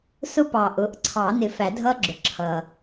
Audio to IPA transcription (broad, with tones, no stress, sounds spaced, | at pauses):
s ʊ˦˥ p ɑ˨˩˦ ʔ ʊ˩˧˩ ʔ ǀʰ ɑ˨˩˦ n ɪ˨˩˦ f æ˨˩˦ dʱ ʌ˦˥ ɡ͡ǁ ʊ˩ ǁʰ ʌ˩